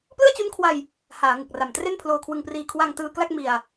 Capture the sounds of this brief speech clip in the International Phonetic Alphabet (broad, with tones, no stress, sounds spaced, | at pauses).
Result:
p l ɯ˥˩ a̯ t͡ɕ u˦˥ n kʰ w a˧ j | h aː˩˦ ŋ ɯ˨˩ k̚ r a˨˩ m t r e˥˩ n pʰ l oː˧ kʰ w ɯ˧ ŋ p r iː˧ kʰ w a˧ ŋ t ɯː˧ k l a˥˩ k̚ m i˧ a̯